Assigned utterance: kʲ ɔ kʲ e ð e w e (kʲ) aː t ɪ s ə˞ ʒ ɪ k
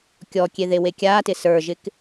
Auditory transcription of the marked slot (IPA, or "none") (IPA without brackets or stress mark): kʲ